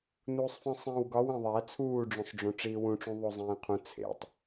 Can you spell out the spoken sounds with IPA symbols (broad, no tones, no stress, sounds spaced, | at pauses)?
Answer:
n uː sˤ f ĩ sˤ ĩː w ɡ ɒ w ẽ ðˤ æ t͡sʰ uː ɖ͡ʐ õ sˤ ɖ͡ʐ õ ʈ͡ʂ iː w ũ ʈ͡ʂ ũ ðˤ o zˤ ĩː qʰ ũ t͡sʰ ḛ tˤ